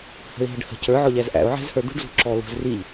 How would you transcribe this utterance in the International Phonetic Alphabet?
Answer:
hə̤ɪ̯ɦəɖhə̤ cə˞ ʕɔʎæzʔæ̰ʊ̯ ʕɛ̤zhə˞d̪ṳɖ zṳǁɔlṳzriʎ

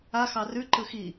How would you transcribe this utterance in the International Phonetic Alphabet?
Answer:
a xɑrʉ ǃɯxi

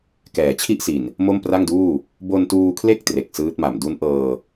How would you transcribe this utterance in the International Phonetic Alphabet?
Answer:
kɛː˩˦t͡ɕʰi˥˩ʔsi˨˩n | mo˥˩mpra˥˩ŋduː˥˩ | bo˧ntuː˧kʰle˥˩k̚ tre˨˩k̚sɯː˦˥t̚ma˨˩m du˦˥nʔɤː˧

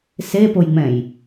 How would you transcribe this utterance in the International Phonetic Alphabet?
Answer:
sepojŋ͡mɛ̃j

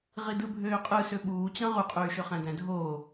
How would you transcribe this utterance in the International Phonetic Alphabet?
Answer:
ʁidɯbʱøːqʼɯ søɓuːt͡ɕɑ̃ ʁuqʼyːʃøχæ̃ dæ̃dʱoː

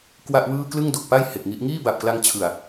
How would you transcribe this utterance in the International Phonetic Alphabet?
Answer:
kwa˥˩ʔwɯː˥˩ klɯ˥˩ŋdo˨˩k̚pa˥˩j he˨˩k̚ŋi˦˥ʔ ŋiː˥˩ba˨˩p̚kla˧ŋ t͡ɕʰɯ˨˩a̯

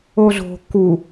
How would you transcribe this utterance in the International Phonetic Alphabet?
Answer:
ozo̤ ku

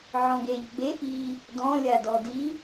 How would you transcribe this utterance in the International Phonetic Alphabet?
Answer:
ʕɔ̃ɡeʎ ɡ͡be ʔi | dɔ̃lʲadɔ di

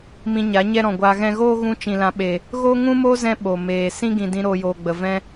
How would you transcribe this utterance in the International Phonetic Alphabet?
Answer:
mĩ˧ɲa˨˦ ɲɛ˦ɾɔ̃˨ɡʷaː˧ ɣɛ̃˧ɣoː˦ɣũ˧t͡ʃĩ˨ lã˨˦ɓe˨ | ɣo˦ŋũ˦mo˦zɛ̃˧ ɓo˨meː˨ sĩ˦ɡĩ˨ dĩ˧ ɾoː˧joː˨ɡ͡bə˨ vɛ̃˦

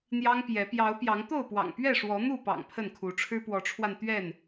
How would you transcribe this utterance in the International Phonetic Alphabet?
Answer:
n̪jɑ˦ŋ pjɛ˨˦ pjɑ˨˦ʊ̯ pjɑ˨˦ŋt̪o˥˨ʊ̯pwɑ̰˨˩ŋpɥɛ˥˨ ʂwɔ˨˦n̪u˥˨pɑ̰˨˩ŋ pʰə˥˨n kʰu˨˦ʈ͡ʂʰɻ̩˦ pwɔ˨˦ʈ͡ʂʰwa˧n t̪ɥɛ˥˨n

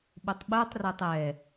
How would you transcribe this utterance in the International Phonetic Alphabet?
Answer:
ɓutˤɓutˤretˤ ɛ

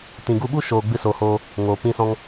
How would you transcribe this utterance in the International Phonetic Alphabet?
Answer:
tĩ˨ɡu˧ɓu˦ʃoː˨ ɡ͡bɨ˦so˨hoː˧ | ŋoː˨pĩ˦sɔ̃˦ŋ

